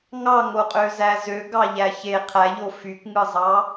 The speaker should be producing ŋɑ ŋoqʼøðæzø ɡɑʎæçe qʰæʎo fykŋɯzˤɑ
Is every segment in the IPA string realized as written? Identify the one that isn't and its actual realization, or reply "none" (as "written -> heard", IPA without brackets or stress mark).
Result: ð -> z